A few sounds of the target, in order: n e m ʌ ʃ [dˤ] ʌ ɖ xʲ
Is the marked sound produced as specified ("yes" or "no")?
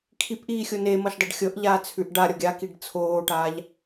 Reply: yes